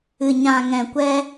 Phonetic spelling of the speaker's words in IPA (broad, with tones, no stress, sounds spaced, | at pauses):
ɨ˨ ɲ ã˨ ŋ ɛ̃˨ kʷ ɛ˧